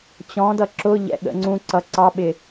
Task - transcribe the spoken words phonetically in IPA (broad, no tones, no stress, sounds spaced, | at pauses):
t͡ɕ ɔ̃ d ʌ ǁ ʊ ʎ ɛ̰ ɠ ə̰ ŋ͡ǀ ũ ǀ ʌ ǀ ɑ ɓ ɪ